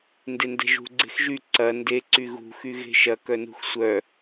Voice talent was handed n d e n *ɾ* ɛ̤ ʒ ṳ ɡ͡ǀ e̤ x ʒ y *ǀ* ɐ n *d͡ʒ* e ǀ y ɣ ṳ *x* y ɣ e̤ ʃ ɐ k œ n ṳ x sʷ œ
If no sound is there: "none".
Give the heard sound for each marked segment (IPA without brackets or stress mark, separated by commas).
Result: d, ǀ, d, x